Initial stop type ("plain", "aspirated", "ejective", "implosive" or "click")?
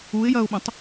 implosive